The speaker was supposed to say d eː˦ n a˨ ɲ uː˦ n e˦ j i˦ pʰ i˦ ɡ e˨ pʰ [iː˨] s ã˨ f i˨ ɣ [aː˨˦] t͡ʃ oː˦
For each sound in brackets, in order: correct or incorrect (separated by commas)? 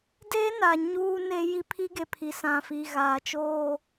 incorrect, incorrect